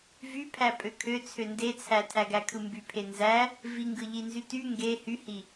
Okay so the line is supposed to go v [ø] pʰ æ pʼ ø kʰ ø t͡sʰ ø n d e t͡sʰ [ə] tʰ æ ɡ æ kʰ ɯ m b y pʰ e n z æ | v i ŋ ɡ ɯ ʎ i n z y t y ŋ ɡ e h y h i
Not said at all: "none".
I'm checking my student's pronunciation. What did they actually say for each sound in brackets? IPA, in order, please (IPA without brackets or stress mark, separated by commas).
y, æ